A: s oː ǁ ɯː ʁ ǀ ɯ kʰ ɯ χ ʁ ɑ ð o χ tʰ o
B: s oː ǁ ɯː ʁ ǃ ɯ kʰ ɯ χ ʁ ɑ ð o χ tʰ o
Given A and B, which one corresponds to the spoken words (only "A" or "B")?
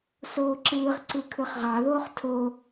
A